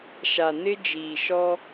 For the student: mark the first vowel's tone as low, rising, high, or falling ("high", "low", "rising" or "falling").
low